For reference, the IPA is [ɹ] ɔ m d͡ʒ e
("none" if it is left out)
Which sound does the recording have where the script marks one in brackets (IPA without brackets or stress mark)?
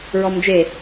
ɹ